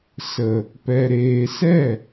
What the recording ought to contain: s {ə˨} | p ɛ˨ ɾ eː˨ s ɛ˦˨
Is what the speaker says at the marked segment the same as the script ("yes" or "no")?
yes